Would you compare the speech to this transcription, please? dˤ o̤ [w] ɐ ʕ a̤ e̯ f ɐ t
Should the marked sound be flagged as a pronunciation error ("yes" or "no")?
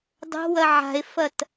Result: no